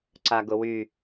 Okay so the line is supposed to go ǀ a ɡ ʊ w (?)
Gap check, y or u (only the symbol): y